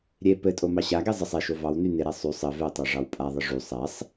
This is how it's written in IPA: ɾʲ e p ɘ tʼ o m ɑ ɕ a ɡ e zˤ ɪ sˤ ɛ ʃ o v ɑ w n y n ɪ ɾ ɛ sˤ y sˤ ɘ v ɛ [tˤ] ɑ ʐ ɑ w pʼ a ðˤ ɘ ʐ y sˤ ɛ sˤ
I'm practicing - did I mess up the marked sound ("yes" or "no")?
no